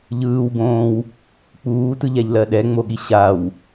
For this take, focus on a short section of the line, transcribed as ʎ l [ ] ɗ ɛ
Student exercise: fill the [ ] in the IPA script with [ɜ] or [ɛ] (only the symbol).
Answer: ɜ